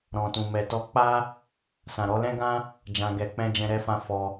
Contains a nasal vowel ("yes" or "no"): yes